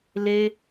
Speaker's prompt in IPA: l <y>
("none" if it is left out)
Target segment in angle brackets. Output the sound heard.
e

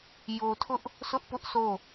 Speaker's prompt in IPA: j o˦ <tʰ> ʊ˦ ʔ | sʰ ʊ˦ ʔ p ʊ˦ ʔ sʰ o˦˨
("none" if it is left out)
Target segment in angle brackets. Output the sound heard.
tʰ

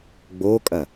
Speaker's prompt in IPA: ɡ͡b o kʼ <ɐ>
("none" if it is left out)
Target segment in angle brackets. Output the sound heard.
ɐ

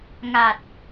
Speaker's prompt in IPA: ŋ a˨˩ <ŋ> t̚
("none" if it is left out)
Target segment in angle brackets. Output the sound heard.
none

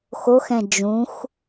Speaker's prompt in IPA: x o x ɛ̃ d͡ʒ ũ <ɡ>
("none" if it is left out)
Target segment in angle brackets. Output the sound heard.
x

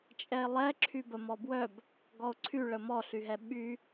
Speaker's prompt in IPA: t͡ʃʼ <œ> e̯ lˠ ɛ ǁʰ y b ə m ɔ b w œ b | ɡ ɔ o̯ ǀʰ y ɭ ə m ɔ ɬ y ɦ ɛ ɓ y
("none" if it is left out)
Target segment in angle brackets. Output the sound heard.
ɛ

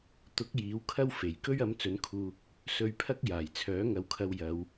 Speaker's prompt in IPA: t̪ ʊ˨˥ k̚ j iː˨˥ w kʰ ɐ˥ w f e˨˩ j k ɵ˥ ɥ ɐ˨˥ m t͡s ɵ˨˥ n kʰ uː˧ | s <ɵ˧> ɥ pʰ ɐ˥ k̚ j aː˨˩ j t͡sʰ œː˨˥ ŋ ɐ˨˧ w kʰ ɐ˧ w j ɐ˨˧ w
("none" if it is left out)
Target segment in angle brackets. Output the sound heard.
ɵ˧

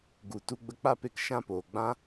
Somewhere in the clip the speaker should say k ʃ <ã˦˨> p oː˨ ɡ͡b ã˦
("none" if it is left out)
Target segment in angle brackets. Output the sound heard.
ã˦˨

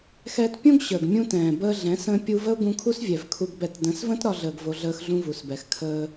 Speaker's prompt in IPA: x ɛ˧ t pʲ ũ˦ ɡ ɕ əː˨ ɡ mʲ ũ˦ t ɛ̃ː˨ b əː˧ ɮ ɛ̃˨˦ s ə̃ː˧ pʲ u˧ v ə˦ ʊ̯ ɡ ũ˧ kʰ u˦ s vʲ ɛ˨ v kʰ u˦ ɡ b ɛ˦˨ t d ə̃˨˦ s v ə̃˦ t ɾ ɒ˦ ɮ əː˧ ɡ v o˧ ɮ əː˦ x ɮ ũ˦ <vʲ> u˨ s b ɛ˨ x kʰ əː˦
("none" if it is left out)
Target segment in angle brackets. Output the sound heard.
v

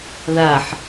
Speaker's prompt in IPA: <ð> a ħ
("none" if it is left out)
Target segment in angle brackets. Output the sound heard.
ð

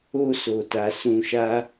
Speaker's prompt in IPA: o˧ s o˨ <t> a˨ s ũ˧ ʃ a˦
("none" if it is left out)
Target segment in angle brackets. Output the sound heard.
t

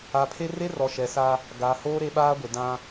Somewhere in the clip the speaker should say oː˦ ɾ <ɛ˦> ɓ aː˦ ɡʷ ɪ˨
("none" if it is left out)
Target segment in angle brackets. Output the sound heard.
e˦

